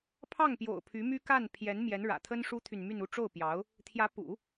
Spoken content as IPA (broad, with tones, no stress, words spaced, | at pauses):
pʰɑ˥˩ŋpjo̰˨˩ʊ̯ pʰy˧˥my˥ka˥˩n pʰjɛ˧˥n mjɛ˧˥nɻä̰˨˩t̪ʰə˥n ʂu˥t̪ʰy˨nmy˥˧nu˥˧ ʈ͡ʂo˥˩ʊ̯pjɑ˧˥ʊ̯ | t̪ʰjä˧˥pṵ˨˩˦